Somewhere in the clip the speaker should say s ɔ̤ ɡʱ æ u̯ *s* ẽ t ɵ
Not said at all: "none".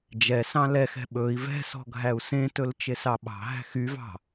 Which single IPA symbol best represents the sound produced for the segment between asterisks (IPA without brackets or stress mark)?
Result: s